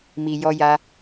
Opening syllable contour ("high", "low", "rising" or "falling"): low